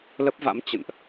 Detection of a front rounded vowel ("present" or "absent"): absent